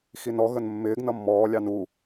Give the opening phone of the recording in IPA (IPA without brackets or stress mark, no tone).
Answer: x